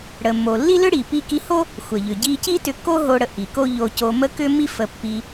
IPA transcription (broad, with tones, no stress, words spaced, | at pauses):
ɽə˩mːo˩ lːi˥lʏ˥ ɽi˩pi˧ki˧ho˥ | xʷə˩ʎʏ˩ ɟi˧ ci˥tʏ˧kːo˥ ɦo˧ɽə˧ ʔi˩ko˥ ʎo˧co˧mə˥ kʏ˥mːi˥ fə˧pːi˧